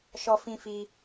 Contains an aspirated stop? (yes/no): no